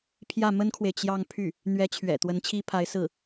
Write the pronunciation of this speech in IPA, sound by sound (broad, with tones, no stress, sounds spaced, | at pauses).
pʰ j ä˥˩ m ə˥ n kʰ w e˨ ɪ̯ t͡ɕ j ɑ˥˧ ŋ pʰ y˥˩ | n̪ ɥ ɛ˧˥ t͡ɕʰ ɥ ɛ̰˨˩ t̪ w ə˧˥ n t͡ɕʰ i˥ pʰ a˧˥ ɪ̯ s ɹ̩˥˩